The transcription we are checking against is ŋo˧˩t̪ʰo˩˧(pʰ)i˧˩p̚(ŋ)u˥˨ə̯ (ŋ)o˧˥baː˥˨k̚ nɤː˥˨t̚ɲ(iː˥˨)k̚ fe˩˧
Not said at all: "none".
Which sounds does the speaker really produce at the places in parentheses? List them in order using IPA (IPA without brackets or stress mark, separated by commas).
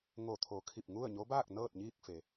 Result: kʰ, ŋ, ɲ, iː˥˨